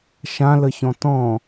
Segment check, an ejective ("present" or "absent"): absent